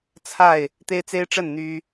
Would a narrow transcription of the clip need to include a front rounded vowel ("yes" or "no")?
yes